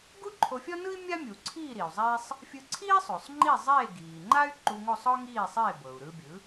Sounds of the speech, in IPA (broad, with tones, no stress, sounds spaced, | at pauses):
ɡ u˥ ǃʰ o˧ fʲ ɔ˥ n ɯ˥ i̯ mʲ a˥ mʲ u˩ ǀʰ iː˥˩ ɾ i˩ u̯ zˤ eː˥ sˤ | fʲ ɯ˧ ǀʰ iː˥ sˤ o˩ sˤ ŋ͡ǃ i˥˩ zˤ eː˥˩ ɡ iː˩ ŋ͡ǃ a˥ y̯ ǃ u˧ ŋ o˥˩ sˤ ɔ˥ ŋ iː˥˩ sˤ eː˥˩ b ɤ˩ u̯ ɾ ɯ˧ bʲ ɯ˩˥